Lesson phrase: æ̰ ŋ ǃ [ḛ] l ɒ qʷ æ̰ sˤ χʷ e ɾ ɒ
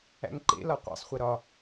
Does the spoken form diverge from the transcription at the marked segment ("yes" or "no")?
no